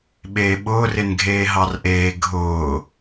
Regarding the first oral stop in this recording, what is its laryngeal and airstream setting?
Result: implosive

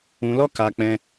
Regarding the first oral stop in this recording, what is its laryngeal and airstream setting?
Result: plain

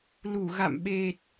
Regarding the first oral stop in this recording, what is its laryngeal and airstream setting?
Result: implosive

